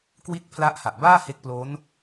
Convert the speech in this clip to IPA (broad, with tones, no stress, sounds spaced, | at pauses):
k w i˥˩ t̚ pʰ l a˦˥ ʔ h a˨˩ ʔ b aː˥˩ h e˦˥ k̚ p l o˦˥ n